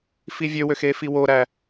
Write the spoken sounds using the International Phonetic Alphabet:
fivʲøwøx efiwoɾæ

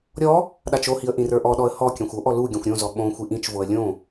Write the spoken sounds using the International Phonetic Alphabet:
ɾʲɔ | ɗat͡ʃohiə̯ ʔĩrə˞ʔɔɗɔə̯ hɔkʲãxʷ oʔɔ lu ɡʲɔ̃xʷɾʲõzɔ ɓõ xʷiʔĩt͡ʃvoə̯ lʲõ

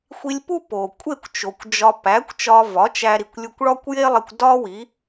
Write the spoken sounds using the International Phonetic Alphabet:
xʷi˧lʲpu˥po˩kʷʼe˥˩kʷ t͡ʃo˩kʷd͡ʒɒ˧ pæ˩˥kʷt͡ʃɒ˧ vɒ˩˥t͡ʃæ˧ ɾi˩kʷ lʲu˧kʷɭɒ˥kʷje˥lˠi˧kʷ dɒ˥ wi˩˥

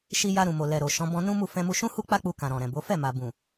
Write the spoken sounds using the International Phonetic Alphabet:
ʃi˧ja˧ ɾũ˨mo˨lɛ˨ɾo˨ ʃɔ̃˨˦ bɔ̃˧nũ˦mu˦˨ fɛ̃˧mu˧ʃũ˦ hu˦k͡pa˦k͡pu˧ kã˨ɾɔ̃˨ɾɛ̃˨bo˨˦ fɛ˦˨ma˨bũ˨

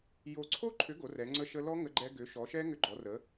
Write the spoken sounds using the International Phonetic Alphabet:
jo˦˥ ǀʰo˦˥ǃʰʏ˨˥ ɡo˨˥rɛ˨˥ŋ͡ǀə˦˥ʃə˦˥ lɔ˦˥ ŋə˦˥ɡ͡ǃɛ˦˥ ɡʏ˨˥ʃɔ˨˥ʃɛ˦˥ ŋʏ˦˥ɡ͡ǃɔ˨˥rə˨˥

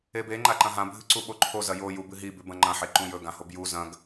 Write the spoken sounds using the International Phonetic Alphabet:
ebe ŋ͡ǃaǃɐ̃ɦã bʱɨǀuɓoǃʰo zɐjo jubɨɦi bʉbɐ̃ŋ͡ǃɐ̃ ħeǃũjɵ ɡãhobju zɐ̃ɡ

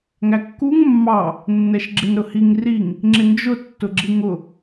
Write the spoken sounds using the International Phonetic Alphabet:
ŋækːuŋ mːɑ | nːɛʃɡ͡ǁɪnɾʊhiŋ riŋ | ŋ͡ǁɪnd͡ʒʊ tːʊɡ͡ǁiŋʊ

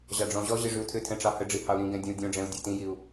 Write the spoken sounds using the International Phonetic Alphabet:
ʑɑɖ͡ʐɔ̃ʑɔʑi ʐyu̯tʰʏtʰɛ̃ ʈ͡ʂɑhəɖ͡ʐi hɑu̯ɾĩɡɛ̃ dʲɛ̃u̯dʲõɖ͡ʐɛ̃u̯ dʲɑtĩjiu̯

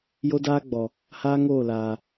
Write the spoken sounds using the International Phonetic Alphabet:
jo˦daː˦ɡ͡bɔ˨ | haː˦ŋoː˦˨laː˨

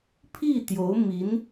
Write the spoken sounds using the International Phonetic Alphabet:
pʰi˥˩t̪jo˧˥ʊ̯mi˧˥n

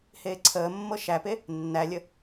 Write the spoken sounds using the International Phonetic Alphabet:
heːǀʰəːmːɤ ʃæpe | nːælʲə

